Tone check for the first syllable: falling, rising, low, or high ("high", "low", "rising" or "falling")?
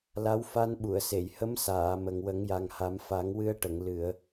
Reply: rising